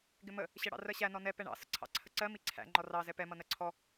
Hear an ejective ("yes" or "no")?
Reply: no